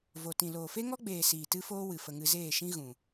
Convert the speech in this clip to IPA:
v o˨ t ĩ˨ l oː˨ f e˦ ŋ ɔ˦ ɡ͡b eː˨ s iː˨ t ɨ˦ f oː˦ w ɨ˨ f ə˧ ŋ ɨ˧ z eː˦˨ ʃ ĩ˦ ɣ ũ˨

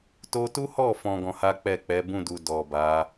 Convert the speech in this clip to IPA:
t o˧ t u˦ h ɔ˦˨ f ɔ̃˨ ɡ ɔ̃˧ h a˦ k͡p ɛ˦˨ k͡p ɛ˨˦ b ũ˦˨ d u˨ d ɔ˨ b a˨˦

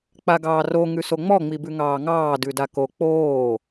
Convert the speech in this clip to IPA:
k͡p a ɡ ɑː r o ŋ ʉ s o ŋ͡m ɔ ŋ͡m i b ʉ ŋ ɑː ŋ ɑː d ʉ d a k o k͡p oː

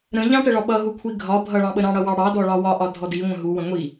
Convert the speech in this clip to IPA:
ɾ ə̃ ʎ ɑ̃ ʈ ə ɭ ɒ ɓ ʌ ɦ u kʷʰ i ɡʱ ɒ bʱ ʌ ɭ ɑ̃ ɓ ə ɾ ɑ̃ ɽ ʌ w ɑ ɽ ɑ d ɔ ɭ ɑ w ɒ ʔ ɒ dʱ ɔ d i ŋʷ ə̃ ɦ u w ə̃ ŋʷ i

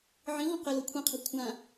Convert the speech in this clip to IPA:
ʕ ĩ ʁ ɔ̃ q ɛ l ɤ kʷʰ ĩ qʰ ɛ̤ kʷʰ ã

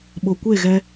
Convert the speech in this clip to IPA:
ɓ o˨ kʷ e˦˨ ɣ ɛ˧

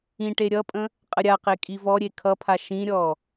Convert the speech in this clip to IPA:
ĩ ʈ e ɾʲ ʌ pʼ ə̃ | qʼ ə ɾʲ a q e kʼ i v ɔ ɾʲ e kʰ ʌ pʰ a ʃ ĩ ɾʲ ɔ

